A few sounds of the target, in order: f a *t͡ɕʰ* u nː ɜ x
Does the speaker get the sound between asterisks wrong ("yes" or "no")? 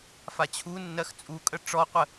no